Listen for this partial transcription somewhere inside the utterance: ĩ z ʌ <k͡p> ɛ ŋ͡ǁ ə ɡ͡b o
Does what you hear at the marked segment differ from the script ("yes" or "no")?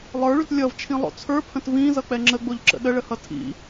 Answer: no